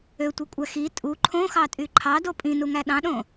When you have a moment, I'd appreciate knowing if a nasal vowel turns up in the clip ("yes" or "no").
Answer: yes